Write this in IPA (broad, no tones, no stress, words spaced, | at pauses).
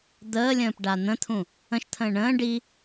d̪əːlʲə̃ːpɖa n̪ə̃t̪ʰũ | ə̃ʃt̪ʰə̃ː ɳə̃ː ɖi